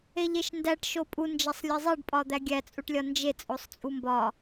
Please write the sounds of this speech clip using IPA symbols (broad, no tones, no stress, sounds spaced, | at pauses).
e ʎ e ʃ n d æ ʈ ʃ o pʼ u n d͡ʒ æ sˤ lʲ e zˤ e ɖ pʼ ɒ d̪ æ ɡʲ æ t͡sʼ u ʈ lʲ ɒ n d͡ʒ e t͡sʼ o sˤ t͡sʼ u m b ɒ